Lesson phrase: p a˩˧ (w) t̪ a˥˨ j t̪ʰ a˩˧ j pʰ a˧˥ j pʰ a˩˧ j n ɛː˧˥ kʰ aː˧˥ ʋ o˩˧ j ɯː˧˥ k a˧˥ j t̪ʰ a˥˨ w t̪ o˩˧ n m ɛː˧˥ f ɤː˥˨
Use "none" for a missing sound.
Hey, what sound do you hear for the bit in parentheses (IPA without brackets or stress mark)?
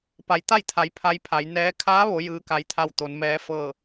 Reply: j